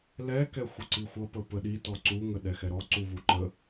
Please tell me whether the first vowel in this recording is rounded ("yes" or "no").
no